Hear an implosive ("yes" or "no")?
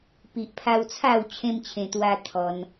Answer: no